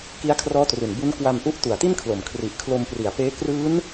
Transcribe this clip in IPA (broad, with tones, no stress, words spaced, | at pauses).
ki˦˥a̯kʰrɔː˦˥tru˨˩n bu˦˥n kwa˧m ʔu˦˥ʔtu˨˩a̯ti˥˩nkʰlo˨˩m kʰri˨˩ʔkʰlo˧mpri˨˩a̯peː˦˥ krɯː˦˥n